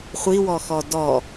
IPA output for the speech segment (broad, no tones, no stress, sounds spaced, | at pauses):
χʷ i w ɔ x ɔ d ɔ